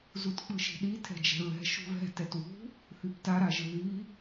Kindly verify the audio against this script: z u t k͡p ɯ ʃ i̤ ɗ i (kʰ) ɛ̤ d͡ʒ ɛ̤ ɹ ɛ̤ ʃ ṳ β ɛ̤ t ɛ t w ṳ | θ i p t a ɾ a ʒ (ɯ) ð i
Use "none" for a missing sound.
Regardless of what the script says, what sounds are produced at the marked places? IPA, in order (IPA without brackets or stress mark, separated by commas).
tʰ, ɯ